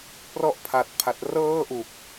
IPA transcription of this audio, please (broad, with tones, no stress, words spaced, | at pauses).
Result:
prɔ˥˩ʔpʰa˨˩t̚pʰa˨˩t̚ rɤː˥˩ʔu˨˩k̚